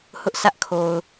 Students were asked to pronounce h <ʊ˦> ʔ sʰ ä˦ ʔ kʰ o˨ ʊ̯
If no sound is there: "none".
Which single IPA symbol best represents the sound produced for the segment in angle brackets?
ʊ˦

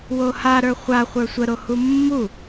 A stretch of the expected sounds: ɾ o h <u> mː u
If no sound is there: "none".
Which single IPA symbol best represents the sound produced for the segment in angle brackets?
u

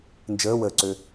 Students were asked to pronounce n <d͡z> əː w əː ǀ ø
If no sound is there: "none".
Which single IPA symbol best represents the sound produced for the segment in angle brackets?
d͡ʒ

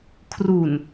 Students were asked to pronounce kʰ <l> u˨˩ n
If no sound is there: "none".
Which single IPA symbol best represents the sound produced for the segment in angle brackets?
r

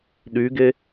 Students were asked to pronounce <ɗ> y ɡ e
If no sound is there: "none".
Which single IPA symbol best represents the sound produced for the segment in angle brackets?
ɗ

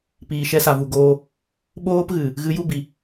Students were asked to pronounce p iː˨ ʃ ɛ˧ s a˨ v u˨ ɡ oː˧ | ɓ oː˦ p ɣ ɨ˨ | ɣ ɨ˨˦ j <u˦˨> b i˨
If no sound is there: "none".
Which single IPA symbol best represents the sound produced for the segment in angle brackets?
u˦˨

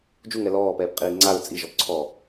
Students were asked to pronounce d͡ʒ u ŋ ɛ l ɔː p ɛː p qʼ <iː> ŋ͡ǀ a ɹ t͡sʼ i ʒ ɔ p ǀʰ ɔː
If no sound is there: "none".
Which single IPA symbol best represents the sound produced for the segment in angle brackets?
iː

